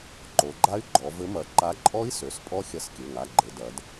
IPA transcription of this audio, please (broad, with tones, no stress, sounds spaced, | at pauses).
ǃ o˩˧ ɡ͡ǃ a˦˥ y̯ ɡ͡ǃ ɔ˩˧ v ɘ˨˥ m ɐ˩˧ ǃ a˨˥ ǃʼ ɔ˦˥ i̯ s ø˩˧˩ s pʼ ɔ˦˥ xʲ ɐ˧˩ s kʲ ɘ˩˧˩ ŋ a˩˧˩ ɡ͡ǃ ɘ˩˧ d ɐ˩˧ d